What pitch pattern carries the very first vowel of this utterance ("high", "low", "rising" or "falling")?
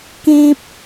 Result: high